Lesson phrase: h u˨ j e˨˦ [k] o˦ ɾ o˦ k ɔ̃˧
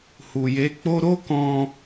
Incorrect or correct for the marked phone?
incorrect: k͡p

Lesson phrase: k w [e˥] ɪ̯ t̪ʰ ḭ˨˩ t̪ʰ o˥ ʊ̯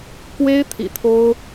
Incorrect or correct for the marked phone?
correct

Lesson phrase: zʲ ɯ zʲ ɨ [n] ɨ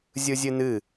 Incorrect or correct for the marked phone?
correct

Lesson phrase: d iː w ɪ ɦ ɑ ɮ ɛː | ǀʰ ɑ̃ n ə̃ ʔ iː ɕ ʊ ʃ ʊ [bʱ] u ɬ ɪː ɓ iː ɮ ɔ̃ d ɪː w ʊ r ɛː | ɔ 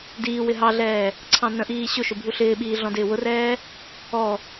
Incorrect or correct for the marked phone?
correct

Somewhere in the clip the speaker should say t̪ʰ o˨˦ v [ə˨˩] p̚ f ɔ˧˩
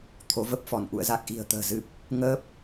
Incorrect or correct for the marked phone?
incorrect: ə˦˥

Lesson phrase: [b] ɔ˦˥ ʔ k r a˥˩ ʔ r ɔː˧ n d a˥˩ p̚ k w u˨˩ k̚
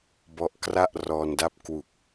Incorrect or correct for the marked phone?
correct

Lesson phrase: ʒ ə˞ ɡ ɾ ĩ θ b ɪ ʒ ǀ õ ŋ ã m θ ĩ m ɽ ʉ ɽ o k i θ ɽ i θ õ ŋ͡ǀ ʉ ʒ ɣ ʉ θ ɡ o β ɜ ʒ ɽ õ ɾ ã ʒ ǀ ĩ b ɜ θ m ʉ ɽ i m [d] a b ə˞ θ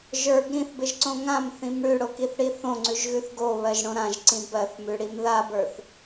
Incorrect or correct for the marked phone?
incorrect: ð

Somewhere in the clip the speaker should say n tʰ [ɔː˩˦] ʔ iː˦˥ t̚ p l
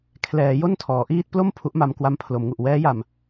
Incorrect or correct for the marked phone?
correct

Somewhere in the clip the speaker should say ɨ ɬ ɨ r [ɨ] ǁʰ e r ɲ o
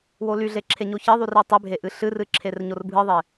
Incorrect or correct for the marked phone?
correct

